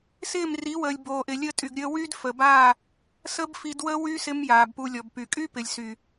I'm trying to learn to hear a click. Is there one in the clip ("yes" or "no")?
no